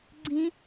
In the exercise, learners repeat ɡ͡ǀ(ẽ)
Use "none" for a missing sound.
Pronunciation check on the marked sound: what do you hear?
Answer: ĩ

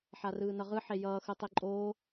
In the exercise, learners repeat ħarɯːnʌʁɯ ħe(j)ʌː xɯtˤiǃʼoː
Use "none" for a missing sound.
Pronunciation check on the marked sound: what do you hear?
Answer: j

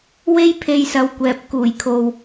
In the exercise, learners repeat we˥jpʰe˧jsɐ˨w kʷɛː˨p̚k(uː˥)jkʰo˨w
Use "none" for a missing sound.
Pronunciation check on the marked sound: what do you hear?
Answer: uː˨˩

